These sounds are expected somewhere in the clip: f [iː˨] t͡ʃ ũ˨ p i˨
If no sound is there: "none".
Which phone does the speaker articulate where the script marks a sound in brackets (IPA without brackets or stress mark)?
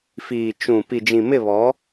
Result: iː˨